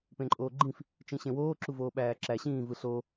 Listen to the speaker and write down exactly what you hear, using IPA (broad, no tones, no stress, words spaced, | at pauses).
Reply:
pẽǃʼoːɡ͡ǃĩf | t͡ʃĩɕẽwoː ǁuvoːɓæːǁæ ɕĩː vɯɬo